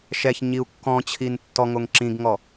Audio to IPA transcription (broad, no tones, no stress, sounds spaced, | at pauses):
ʃ ɛ ç ɲ i u̯ kː ɔ̃ t͡ɕʰ i n tː ɔ ŋ o ŋ ǁ ĩ ɡ ŋ ɔ